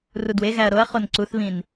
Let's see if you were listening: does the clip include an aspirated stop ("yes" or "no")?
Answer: no